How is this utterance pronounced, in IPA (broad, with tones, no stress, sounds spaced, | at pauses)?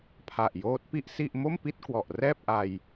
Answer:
pʰ a˨˩ ʔ j oː˦˥ t̚ p i˥˩ ʔ s i˥˩ ʔ m o˥˩ m p i˥˩ t̚ k w ɔ˨˩ ʔ r ɛː˥˩ p̚ ʔ a˧ j